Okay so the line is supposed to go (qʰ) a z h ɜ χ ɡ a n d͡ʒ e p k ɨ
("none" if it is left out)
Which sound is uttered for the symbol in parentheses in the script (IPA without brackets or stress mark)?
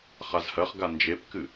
χ